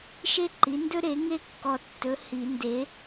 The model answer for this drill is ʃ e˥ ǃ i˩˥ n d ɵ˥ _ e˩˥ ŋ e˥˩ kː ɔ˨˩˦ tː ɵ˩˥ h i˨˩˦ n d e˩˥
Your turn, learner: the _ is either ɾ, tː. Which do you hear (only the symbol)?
ɾ